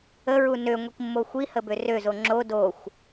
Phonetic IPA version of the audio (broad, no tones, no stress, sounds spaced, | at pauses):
ə ɹ u n ø ŋʷ i k mː o xʷ i h ə b ø r ø z o ŋ͡ǁ o d o xʷ